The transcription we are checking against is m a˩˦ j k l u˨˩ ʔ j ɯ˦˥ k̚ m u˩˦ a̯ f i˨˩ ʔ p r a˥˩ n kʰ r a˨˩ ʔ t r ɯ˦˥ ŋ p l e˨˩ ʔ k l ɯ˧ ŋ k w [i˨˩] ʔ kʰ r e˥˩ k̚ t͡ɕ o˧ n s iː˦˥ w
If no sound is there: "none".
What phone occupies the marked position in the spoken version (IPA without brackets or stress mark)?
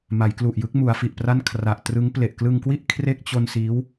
i˥˩